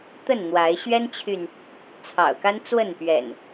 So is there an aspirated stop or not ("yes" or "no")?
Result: yes